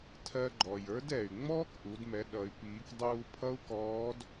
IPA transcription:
tʰ ɜ˧ ɡ͡ǃ ɔ˩ j ə˞˧˥ d ɛ˩ y̯ ŋ͡m ɔː˥ k ʔ u˩˧ d m ɛ˩˧ ɗ ʌ˩˧ y̯ p iː˩˧ k dˤ uː˧ pʰ ʌ˥ u̯ k ɔː˧˥ d

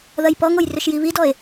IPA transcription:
ð ɐ j p ɔ ŋ o j r ʏ ʃ j i β i d ɔ e̯

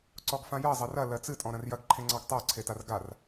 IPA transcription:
ǀ ɔ ɡ f ã j ɜ zˤ ɐ r ɐ l ɜ t͡s ɨ tʼ ɔ̃ ɾ ɐ̃ r j ɐ ɡ ǃʰ ẽ ŋ͡ǀ ɑ ɡ tˤ ɜ ǀʰ e t a r ɡ a r

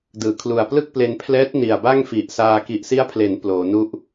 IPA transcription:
d ɯː˩˦ kʰ l u˨˩ a̯ p l ɯ˥˩ k̚ p l e˧ n pʰ l ɛː˦˥ t̚ n i˨˩ a̯ b a˥˩ ŋ f i˨˩ ʔ s aː˧ k i˨˩ ʔ s i˦˥ a̯ pʰ l e˩˦ n p l oː˩˦ n u˥˩ ʔ

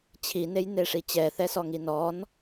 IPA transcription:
t͡ɕʰ i n e j n e ʂ i t͡ɕ ɛ θ ɛ s ɔ ŋ i n ɔ n

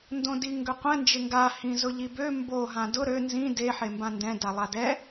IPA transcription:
n d õ d i ŋ ɡ ø qʷ ɛ̃ n d͡ʒ ɪ ŋ ɡ a h ĩ z ʊ ʎ i b ø m b o ɦ ã d ʊ ɾ ø n z ĩ d e ħ e m b ã n d ɛ̃ d a lˠ a d ɛ

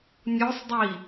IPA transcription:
nʲ o sˤ dˤ i

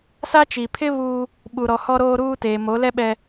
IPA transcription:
s a˦ t͡ʃ i˨ pʰ ɪ˦ β uː˦ | ɓ u˨ ɾ ɔ˨ h ɔ˦ ɾ oː˦ ɾ uː˦ t eː˨ m o˨˦ l ɛ˦ ɓ ɛ˦

